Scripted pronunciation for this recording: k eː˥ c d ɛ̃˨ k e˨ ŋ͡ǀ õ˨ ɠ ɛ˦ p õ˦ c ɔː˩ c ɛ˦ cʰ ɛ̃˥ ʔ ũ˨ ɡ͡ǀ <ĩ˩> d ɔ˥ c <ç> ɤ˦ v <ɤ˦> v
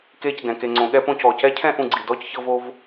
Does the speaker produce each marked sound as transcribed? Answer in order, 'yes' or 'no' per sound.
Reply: no, yes, no

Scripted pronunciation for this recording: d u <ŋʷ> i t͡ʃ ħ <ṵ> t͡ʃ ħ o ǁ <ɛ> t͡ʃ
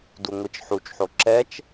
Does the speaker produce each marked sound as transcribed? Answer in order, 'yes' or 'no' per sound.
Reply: yes, no, yes

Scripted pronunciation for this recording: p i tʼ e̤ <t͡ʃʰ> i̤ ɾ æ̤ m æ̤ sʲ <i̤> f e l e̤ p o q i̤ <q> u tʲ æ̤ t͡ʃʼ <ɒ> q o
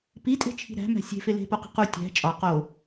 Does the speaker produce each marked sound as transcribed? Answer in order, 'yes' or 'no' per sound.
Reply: yes, no, yes, yes

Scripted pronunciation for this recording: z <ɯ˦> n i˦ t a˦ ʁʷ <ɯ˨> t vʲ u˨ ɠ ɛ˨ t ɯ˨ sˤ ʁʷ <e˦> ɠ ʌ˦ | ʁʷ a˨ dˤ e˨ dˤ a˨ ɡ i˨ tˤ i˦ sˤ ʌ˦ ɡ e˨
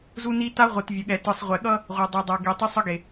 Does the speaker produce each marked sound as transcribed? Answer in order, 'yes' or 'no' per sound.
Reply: no, yes, no

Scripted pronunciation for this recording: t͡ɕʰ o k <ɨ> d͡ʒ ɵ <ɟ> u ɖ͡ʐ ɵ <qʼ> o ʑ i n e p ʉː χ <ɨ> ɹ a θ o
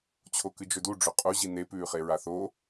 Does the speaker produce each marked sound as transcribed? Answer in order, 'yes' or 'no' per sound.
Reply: yes, no, yes, no

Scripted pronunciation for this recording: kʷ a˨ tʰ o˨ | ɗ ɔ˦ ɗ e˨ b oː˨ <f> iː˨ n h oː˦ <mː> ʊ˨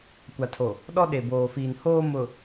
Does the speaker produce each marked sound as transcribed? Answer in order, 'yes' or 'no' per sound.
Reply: yes, no

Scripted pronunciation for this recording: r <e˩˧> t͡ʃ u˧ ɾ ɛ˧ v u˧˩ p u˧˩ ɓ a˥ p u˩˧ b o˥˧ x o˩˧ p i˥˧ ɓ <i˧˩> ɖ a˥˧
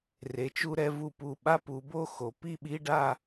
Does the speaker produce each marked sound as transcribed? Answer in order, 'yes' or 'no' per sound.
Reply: yes, no

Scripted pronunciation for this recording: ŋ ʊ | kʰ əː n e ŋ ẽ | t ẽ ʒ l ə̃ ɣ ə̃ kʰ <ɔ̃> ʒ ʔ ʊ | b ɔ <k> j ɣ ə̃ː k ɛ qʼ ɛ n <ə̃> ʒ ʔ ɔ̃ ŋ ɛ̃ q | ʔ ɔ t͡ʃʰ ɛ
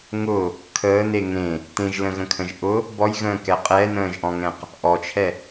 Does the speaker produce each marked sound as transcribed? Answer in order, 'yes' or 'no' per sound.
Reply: no, no, no

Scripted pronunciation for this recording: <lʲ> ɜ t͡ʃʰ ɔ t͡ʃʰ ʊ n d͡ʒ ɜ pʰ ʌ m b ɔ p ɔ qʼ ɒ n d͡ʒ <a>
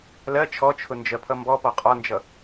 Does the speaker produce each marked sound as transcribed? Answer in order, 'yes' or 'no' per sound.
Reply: no, no

